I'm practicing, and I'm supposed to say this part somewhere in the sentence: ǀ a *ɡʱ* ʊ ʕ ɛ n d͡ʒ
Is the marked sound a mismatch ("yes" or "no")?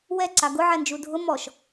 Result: yes